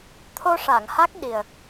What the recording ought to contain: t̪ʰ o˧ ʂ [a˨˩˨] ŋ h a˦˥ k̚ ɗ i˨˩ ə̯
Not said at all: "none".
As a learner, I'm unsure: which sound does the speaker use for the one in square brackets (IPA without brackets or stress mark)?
a˨˩˨